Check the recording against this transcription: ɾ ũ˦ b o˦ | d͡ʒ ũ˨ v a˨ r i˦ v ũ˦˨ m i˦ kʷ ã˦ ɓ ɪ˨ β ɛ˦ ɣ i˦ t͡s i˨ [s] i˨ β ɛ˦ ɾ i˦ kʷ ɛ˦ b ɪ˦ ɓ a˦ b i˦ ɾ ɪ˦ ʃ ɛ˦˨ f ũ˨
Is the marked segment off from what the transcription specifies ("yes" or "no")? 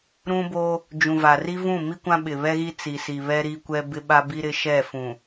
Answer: no